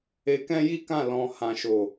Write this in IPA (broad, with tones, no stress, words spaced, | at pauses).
e˧kɛ̃˦ji˦kã˦˨ lɔ̃˧ hã˦ʃo˦˨